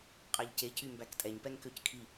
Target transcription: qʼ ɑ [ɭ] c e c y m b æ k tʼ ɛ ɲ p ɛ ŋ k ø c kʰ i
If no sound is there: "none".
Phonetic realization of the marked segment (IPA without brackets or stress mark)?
ʎ